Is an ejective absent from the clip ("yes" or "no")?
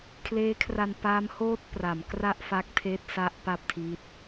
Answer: yes